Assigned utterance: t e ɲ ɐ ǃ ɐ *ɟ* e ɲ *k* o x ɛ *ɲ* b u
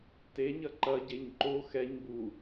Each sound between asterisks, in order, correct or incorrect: correct, incorrect: ǃ, correct

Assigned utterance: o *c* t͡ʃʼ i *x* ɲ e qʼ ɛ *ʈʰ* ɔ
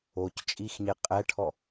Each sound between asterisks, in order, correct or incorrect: correct, correct, correct

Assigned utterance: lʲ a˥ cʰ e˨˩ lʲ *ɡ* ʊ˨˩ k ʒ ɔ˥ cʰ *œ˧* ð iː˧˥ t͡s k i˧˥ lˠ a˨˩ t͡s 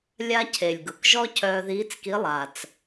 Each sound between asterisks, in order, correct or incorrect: correct, incorrect: œː˧

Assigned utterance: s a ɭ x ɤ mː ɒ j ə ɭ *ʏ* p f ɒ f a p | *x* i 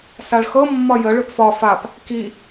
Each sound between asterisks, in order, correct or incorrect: correct, incorrect: k

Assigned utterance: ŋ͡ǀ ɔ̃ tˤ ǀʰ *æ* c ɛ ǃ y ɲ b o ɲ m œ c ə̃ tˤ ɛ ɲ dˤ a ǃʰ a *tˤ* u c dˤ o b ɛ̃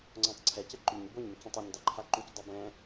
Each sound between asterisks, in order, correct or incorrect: incorrect: ɛ, incorrect: ǃ

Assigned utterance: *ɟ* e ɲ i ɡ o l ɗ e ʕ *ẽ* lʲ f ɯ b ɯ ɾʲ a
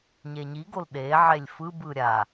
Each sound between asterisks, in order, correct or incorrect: incorrect: ɲ, incorrect: e

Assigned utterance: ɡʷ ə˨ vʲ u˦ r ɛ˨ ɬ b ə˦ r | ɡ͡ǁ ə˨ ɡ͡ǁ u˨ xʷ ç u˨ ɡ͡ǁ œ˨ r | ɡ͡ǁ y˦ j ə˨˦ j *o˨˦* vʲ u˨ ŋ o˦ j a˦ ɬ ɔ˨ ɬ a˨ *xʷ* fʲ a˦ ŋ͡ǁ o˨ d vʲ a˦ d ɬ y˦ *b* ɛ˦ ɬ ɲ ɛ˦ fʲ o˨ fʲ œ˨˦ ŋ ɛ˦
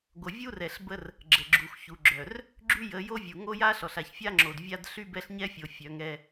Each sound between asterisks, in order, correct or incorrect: incorrect: o˦, incorrect: ç, correct

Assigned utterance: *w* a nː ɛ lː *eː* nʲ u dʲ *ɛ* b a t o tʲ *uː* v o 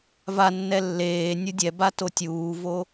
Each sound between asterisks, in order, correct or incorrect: incorrect: v, correct, correct, correct

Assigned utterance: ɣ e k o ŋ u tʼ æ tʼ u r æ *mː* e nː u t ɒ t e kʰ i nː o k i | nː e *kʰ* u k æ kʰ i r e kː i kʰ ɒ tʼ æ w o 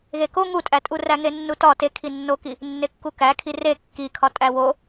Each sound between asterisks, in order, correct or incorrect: incorrect: ŋ, incorrect: kː

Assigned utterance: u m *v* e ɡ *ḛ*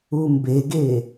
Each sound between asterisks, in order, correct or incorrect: incorrect: b, incorrect: e

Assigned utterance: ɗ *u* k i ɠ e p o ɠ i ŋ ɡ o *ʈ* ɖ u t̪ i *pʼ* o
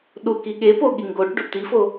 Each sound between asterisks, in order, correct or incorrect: correct, correct, incorrect: f

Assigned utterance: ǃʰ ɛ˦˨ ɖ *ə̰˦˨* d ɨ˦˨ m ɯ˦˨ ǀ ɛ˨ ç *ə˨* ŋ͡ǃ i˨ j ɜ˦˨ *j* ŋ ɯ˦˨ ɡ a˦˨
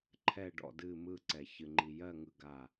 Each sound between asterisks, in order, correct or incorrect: incorrect: ɔ̰˦˨, incorrect: ɨ˨, incorrect: none

